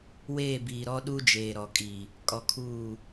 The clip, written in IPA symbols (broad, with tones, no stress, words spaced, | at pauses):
weː˦˨biː˨ɾɔ˦ɗu˦ d͡ʒeː˨ɾɔ˨kʼi˨ | kʼɔ˨kʰuː˦˨